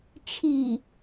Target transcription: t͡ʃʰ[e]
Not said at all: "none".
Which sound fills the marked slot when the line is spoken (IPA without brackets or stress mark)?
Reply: i